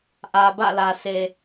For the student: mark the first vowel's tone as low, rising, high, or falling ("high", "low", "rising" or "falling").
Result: low